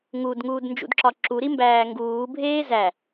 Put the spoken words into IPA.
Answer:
ŋ u d ŋ uː d n d͡ʒ ṵ d ǁ ɒ ǁ u ɾ i m b æː ŋ ɡ uː bʱ eː z æ

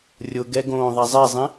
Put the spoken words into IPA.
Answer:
rʲ ʊ ɡ ɛ ɡ õː ðˤ a zˤ ɛ zˤ ĩ

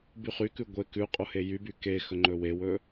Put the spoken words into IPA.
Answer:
b y χ y k ʉ ɡʷ e k ʉ qʼ o h e j y b y k e x ɵ ŋ͡ǃ ɵ w e w ɵ

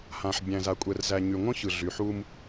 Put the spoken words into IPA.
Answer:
h ã˨ ħ bʲ æ̃˨ z a˨ kʷʼ ɛ˨ r z æ˨ ɲ y˨ ŋʷ ə̃˦ ç ɯ˨ ɮ y˨ ħ u˦ m

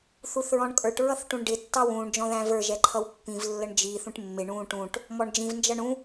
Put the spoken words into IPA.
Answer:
θ u θ ɹ ɔ̃ ɳ kʼ ə˞ ʈ ɹ ʌ θ ʈ ũ ɳ ɖ ɪ tː ɑ w ũː ɳ d͡ʒ ɔ̃ ð æ̃ v ə˞ ʒ ɛ ǃʰ ʌ w pː ĩ v lː ə ɳ d͡ʒ i θ ũ ʈ mː ɪ ɳ ũː ʈ ũ ʈ | m ɔ ɳ d͡ʒ ĩ v n d͡ʒ ʌ ɳ ũ

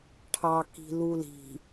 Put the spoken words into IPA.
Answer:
ʈʰ ɑ k i̤ l u l i̤

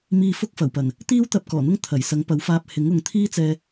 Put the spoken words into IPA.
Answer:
m iː˧ f ʊ˥ k̚ f ɐ˨˩ w p ɐ˨˩ n | t̪ iː˥ w t̪ ɐ˧ p̚ k ɔː˨˩ n̪ ʊ˥ ŋ t̪ʰ ɐ˨˩ j s ɐ˨˥ ŋ p ɐ˨˥ w f aː˧ p̚ h ɪ˨˥ ŋ ʊ˨˧ ŋ t̪ʰ iː˥ t͡s ɛː˧

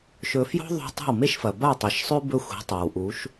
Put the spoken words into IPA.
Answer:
ʃ ɵ˧ f j o̤˥ ðˤ o̤˧ tˤ a̤˥˩ w m e˥ ʃ f ɐ˩ b a˥˩ tˤ ɐ˩˥ ʃ sˤ ʉ˥ b ɵ˥ xʷ i̤˩˥ tˤ a˩ w ʔ u˩˥ ʃ

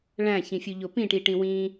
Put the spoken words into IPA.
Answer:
ɭ æ̃ ç ĩ fʲ u ʎ o p ĩ ʈ i ʈ ĩ w ĩ

